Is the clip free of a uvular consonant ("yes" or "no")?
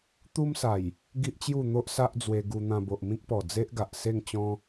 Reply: yes